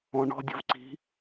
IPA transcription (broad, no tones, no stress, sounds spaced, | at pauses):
ɔ̃ ɳ ɔ̤ dʲ ə̤ v ǀ i̤